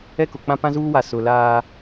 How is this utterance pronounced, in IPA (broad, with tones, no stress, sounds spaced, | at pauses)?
ɛ˦ k ʊ˨ k͡p ã˦ p ã˦ z uː˦ w a˨ s ʊ˨ l aː˦